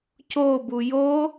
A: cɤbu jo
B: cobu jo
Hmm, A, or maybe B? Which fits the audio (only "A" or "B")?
B